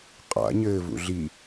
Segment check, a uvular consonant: present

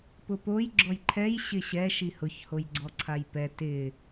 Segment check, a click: present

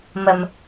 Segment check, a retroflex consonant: absent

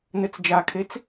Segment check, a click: absent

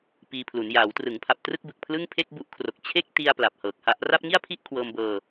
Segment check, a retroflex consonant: absent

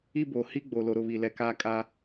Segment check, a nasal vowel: absent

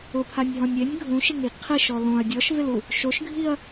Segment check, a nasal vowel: present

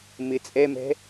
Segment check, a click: absent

